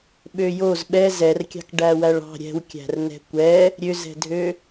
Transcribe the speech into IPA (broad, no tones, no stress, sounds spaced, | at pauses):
ɓ ø j o z ɓ ɛ z ɛ r kʲ ɑ̤ k ɖ æ w æ ɭ ɑ̤ ɾʲ ɛ̤ w kʲ æ̤ r n ɛ̤ kʷ ɛ | ɾʲ ø z ɛ̤ dʱ ø